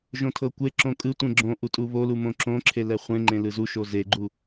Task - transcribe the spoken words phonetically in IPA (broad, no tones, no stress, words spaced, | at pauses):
ʒõtʰɤkʷe ǁõkʼɯ tʷẽɡ͡ǁõ ʔutʼuβo lumõǁõǁʰe lɛχʷẽŋ͡ǃẽ lɯzu ʃozeɡ͡ǃu